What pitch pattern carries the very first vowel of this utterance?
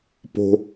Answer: low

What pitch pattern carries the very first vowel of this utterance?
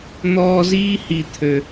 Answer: high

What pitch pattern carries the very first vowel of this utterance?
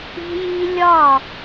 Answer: high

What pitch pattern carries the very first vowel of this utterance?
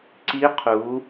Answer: rising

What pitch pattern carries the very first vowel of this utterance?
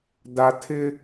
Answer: high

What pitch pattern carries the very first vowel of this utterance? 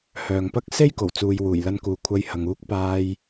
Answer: low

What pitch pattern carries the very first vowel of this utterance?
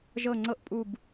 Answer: falling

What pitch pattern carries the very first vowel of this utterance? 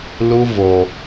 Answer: high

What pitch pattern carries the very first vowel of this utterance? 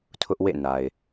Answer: high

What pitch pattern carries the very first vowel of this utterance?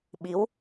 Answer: rising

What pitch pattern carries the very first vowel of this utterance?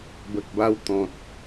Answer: low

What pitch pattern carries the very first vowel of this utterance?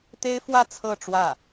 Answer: high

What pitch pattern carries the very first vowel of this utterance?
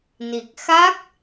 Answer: low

